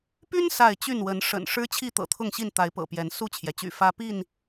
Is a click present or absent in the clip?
absent